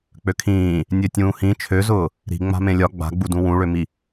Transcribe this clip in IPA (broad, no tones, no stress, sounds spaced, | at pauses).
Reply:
k͡p ø kʰ ĩː | nʲ ø tʲ ũː h ĩ t͡ʃʰ ø z ʊː | ɾ i̤ ŋ͡m a̤ m ẽ lʲ ɒ ɡ͡b a̤ ɡ͡b u d ũ w ũ ɭ ø m i